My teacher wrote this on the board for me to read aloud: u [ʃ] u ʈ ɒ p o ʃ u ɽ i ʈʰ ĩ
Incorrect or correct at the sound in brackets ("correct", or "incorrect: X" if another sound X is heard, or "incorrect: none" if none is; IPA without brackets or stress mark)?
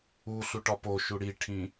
incorrect: ɬ